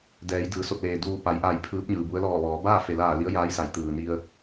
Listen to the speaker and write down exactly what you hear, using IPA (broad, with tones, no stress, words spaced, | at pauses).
dɛː˩˧jdɯː˩ so˧˩t̚leː˩ duː˧˩ pa˩˧jʔaː˧˩j pʰɯː˧˥p̚ɲɯː˩bu˧˥ə̯ lɔː˧˩ʋɔː˩˧ baː˥˨fe˩laː˧˩ li˧˥ə̯jaː˧˥jsa˩˧j t̪ɯː˩ni˧ə̯